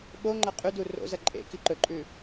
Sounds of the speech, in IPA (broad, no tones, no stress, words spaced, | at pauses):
ɓoŋ͡ǃɐ qʼʉdu ro̰zɐ ǃʼḛ kiǃɵǃʼʉ